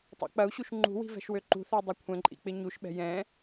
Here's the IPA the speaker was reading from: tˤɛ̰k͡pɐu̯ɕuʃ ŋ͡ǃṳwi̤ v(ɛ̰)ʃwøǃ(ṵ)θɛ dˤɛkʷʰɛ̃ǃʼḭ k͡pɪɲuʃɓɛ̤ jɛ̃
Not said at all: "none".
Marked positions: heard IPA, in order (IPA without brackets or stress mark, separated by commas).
ɛ̤, ṳ